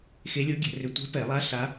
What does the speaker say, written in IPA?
xe˧˥lʲo˧˥ɡʲɛ̤˧˩˧rʏ˧˩˧ tʷɛ̤˧˥pɛ˧˩˧lˠa˧˥ ɬa˧˥

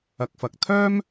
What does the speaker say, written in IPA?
ɐ˨k̚fɐ˨k̚ t̪ʰœː˥m

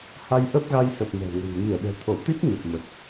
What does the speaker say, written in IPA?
ha˧jʔə˦˥p̚ɣa˧jsə˨˩p̚ mɛ̤˨˩ŋə̤˨˩n mi˧˩ə̯ɗɛ̤˨˩ t̪ʰo˧˩t̪i˦˥t̚ ɲə˨˩p̚mə˨˩t̚

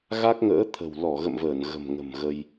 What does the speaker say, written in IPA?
ɣa˦˥k̚ŋə̰ː˧˥t̪ʰə̤˨˩w lɔ˧˩ɣə̰˧˨mvəː˧˩n ɣə̤˨˩mŋə̤˨˩mɣə˧j

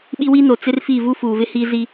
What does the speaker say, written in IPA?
ɓi˦wi˦no˨ t͡sɪ˦rfi˦˨ vu˦fuː˨vɪ˦ hiː˦zi˦

